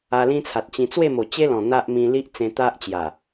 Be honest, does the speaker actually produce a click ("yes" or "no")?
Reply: no